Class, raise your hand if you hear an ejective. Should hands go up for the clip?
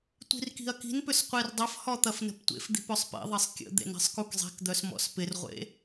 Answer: no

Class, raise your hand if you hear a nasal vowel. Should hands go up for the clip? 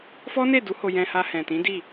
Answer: yes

